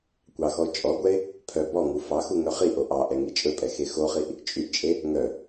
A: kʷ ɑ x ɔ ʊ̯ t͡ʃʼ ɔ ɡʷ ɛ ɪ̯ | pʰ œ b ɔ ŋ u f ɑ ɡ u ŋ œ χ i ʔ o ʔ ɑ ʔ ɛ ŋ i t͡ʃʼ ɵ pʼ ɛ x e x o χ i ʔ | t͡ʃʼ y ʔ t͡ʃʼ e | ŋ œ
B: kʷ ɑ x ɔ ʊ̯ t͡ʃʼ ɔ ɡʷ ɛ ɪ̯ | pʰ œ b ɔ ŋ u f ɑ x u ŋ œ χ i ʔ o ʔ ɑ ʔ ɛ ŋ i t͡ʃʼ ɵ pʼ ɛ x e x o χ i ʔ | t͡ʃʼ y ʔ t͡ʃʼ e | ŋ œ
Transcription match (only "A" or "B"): B